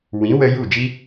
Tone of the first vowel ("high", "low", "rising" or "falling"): rising